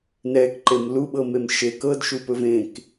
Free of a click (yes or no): no